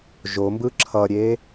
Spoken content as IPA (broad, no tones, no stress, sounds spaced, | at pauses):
ʒ o m b ɯ ǁʰ ʌ ɾʲ e